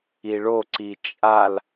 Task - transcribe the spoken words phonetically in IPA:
i ɭ o ǀ i t͡ʃʼ a l

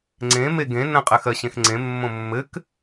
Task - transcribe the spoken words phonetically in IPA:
ŋ͡ǀ ẽ m e ɡ ẽ n ə̃ qʼ ɘ x ɜ ɕ ẽ x ŋ͡ǀ ẽ mː õ mː ɘ k

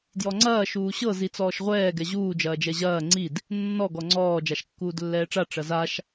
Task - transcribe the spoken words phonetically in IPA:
d j ɔ ŋ͡ǀ ɐː ʃ uː ɕ ɤ z i t͡s ɔː ʃ ʁʷ ɛː ɡ ɛ ʑ uː d͡ʒ ɐː d͡ʒ ɛ ʑ ɐː ŋ͡ǀ i d | nː ɔ ɡ ɔ ŋ͡ǀ ɔː d͡ʒ a ʃ kː uː d lː ɛː ʈ͡ʂ a ʈ͡ʂ ɐ z a ʃ

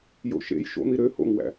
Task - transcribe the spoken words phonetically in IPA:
j o̰ ʃ ḛ j ʃ o̰ n̪ i ɾ ø h o̰ ŋ w æ̰

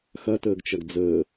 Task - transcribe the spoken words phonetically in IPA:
x ɐ t əː ɡ t͡ʃ ɐ ɡ d͡z əː

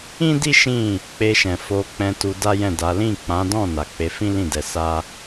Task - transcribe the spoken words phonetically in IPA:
ĩ˦ d i˦ ʃ ĩ˦˨ | k͡p e˧ ʃ ɛ̃˨ f o˧ k͡p ɛ̃˧ t u˧ d a˦ j ɛ̃˦˨ d a˨˦ l ĩ˦˨ k͡p ã˨˦ d ɔ̃˦˨ n a˨ k͡p e˨˦ f ĩ˦ l ĩ˦˨ d ɛ˧ s a˦

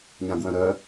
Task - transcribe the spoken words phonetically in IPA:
ɲ ã ɡ w œ̃ ɾ œ

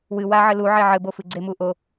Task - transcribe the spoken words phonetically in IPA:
w ɨ w a ʕ ɘ l u ʕ e ʕ ɘ b o f ɨ ɡ͡ǀ e m u ʔ o

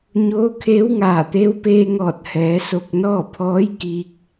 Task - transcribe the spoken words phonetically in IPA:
ɲ oː˧˥ kʰ eː˧˥ w ŋ aː˧˩ t̪ eː˧˥ w p eː˧ ŋ ɔː˧˩ t̚ h ɛː˩˧ s o˧˩ k̚ n ɔː˥˨ pʰ ɔː˧˥ j k iː˧ k̚

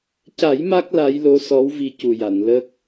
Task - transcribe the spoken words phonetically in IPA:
c a˨˩˦ j m a˦˥ k̚ l a˧˥ j l o˧˥ s ɔ˧˥ w v i˧ c u˨˩ j a˨˩˨ n l ə˦˥ k̚

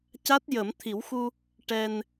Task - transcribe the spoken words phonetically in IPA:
c a˦˥ t̚ j ə˨˩˦ m t̪ʰ i˨˩˦ w x u˧ | ʈ ɛ˧ n

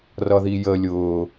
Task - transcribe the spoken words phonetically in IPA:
r ʌ ð i j ə lʲ ʊː

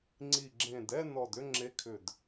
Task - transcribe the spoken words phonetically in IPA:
ŋ͡ǀ i˨˩ ɡ͡ǁ ẽ˨˩ d ɛ˥˧ n ɔ˨˩ d ʏ˥˧ ŋ͡ǁ e˨˦ kʰ ʏ˨˩ d

